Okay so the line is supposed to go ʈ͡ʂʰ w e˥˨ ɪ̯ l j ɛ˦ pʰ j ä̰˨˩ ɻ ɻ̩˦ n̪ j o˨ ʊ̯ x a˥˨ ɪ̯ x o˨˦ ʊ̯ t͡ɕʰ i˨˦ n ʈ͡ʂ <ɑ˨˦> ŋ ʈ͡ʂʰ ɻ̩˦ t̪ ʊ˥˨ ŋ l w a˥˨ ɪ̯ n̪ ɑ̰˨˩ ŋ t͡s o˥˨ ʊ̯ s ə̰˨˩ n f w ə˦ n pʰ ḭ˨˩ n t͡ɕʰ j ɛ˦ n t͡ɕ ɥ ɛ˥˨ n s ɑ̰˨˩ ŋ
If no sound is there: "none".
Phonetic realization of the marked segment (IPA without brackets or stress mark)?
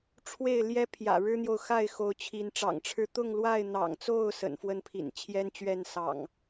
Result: ɑ̰˨˩